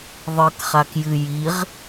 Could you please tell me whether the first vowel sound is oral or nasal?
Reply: oral